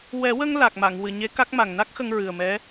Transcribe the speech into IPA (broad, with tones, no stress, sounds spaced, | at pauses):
w ɛ˨˩˦ w ə˧ ŋ l a˨˩ k̚ m a˨˩˨ ŋ w ɨ˨˩˨ ɲ e˧˥ k a˦˥ k̚ m a˨˩ ŋ n a˦˥ k̚ x ə˧ ŋ ɹ ɨ˨˩ ə̯ m ɛ˧˥